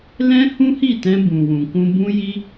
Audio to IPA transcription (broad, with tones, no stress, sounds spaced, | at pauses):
l ɛ̃˦ h ũ˦ h i˦˨ t ɛ̃˧ b ũ˨ w ũ˨ k ũ˧ b ũ˦ j i˦